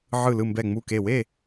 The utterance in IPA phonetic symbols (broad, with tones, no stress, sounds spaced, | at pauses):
ʕ ɯ˧˩ l ɯ˧˩ m b ɛ˧˩ ŋ͡m u˧˩ k e˧˩ w e˥˨